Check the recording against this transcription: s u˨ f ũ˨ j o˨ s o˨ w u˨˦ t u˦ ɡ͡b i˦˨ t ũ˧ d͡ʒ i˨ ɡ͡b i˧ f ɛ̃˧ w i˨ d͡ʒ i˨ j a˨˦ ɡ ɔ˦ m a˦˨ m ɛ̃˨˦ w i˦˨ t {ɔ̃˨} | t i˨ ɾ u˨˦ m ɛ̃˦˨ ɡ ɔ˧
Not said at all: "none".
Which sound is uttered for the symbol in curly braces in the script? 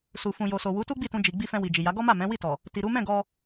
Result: ɔ˨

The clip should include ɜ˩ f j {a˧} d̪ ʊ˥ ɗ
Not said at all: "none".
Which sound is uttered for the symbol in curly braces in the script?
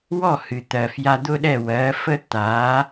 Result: a˧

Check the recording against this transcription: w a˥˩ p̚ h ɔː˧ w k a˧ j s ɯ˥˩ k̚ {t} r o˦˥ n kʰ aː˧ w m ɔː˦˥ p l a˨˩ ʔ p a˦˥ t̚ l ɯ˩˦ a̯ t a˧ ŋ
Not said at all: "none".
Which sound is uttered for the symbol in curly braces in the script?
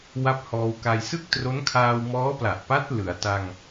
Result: t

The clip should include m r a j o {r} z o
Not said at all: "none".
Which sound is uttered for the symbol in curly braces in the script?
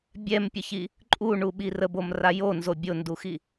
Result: n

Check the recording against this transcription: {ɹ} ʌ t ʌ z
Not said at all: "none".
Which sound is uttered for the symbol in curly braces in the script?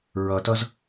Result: ɹ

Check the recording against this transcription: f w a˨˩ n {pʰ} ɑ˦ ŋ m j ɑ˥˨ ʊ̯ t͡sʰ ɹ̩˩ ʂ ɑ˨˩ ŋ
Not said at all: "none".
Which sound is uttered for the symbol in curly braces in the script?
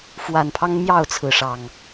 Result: pʰ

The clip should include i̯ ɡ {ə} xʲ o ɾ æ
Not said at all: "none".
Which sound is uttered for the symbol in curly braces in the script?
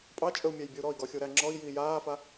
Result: ɔ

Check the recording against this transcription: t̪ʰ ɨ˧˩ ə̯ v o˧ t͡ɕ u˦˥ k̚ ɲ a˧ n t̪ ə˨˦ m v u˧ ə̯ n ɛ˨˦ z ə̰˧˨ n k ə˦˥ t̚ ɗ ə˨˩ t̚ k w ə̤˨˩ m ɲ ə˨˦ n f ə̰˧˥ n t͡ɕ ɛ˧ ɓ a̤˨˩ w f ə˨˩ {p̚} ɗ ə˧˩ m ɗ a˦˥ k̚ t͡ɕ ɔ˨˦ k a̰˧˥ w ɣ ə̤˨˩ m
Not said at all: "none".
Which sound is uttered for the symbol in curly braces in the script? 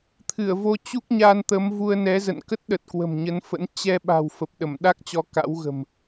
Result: p̚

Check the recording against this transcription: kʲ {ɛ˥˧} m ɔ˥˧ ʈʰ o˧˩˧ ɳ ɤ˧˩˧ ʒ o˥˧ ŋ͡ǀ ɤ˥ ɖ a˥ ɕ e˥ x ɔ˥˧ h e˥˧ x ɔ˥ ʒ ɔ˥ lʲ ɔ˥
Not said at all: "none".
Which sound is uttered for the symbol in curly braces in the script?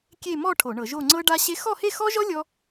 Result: e˥˧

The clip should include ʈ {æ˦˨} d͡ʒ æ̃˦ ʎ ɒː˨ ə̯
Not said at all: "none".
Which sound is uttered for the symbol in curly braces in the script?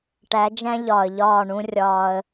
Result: æ˨˦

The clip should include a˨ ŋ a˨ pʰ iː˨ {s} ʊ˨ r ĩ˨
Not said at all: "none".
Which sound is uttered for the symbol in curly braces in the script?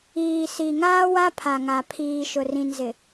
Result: ʃ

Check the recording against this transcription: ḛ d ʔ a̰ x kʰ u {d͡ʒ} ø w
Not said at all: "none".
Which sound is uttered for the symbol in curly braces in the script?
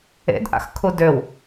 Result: d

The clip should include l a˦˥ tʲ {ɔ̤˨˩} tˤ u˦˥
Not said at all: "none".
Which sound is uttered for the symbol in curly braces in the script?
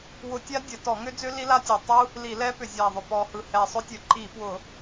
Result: ɔ˨˩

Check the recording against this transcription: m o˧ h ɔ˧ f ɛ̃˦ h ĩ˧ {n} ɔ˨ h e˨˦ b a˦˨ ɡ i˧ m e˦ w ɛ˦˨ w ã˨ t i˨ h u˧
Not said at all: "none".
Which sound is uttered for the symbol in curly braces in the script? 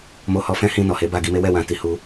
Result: n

